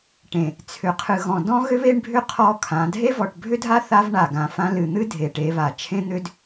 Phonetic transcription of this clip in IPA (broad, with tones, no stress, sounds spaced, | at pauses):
ʈ ẽ˨ | t͡sʰ ʏ˨ qʰ ɨ˨ ɣ ɔ̃˨ d ɔ̃˦ ɣ ʏ˦ β e˦ ɳ bʱ ʏ˦ qʰ ɔ˦ kʰ ã˨˦ dʱ e˦ v ɔ˨ ʈ bʱ ʏ˦ dʱ a˦ θ a˦ v ɳ a˨ ɡ ã˨ f ã˦ l ɨ˨ n̪ ɨ˦ dʱ e˨ ʈ e˨˦ β a˨ t͡ʃʰ ẽ˦ n̪ ʏ˦ d